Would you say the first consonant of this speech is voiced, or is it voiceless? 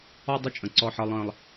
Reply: voiced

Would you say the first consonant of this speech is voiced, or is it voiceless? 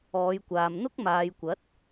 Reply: voiced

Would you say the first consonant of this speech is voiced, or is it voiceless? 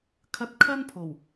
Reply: voiceless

